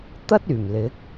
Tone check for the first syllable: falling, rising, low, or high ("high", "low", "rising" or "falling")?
high